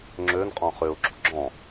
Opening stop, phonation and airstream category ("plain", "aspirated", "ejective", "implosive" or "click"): click